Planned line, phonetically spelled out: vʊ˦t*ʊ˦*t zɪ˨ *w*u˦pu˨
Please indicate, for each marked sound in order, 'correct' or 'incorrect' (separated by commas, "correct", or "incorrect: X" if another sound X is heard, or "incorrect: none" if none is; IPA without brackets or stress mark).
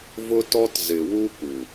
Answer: incorrect: ɔ˦, correct